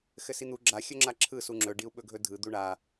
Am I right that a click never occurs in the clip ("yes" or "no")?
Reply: no